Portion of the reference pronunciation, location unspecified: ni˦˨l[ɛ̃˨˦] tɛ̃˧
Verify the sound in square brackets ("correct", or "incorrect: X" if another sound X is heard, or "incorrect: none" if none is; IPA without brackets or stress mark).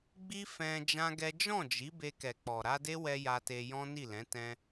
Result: correct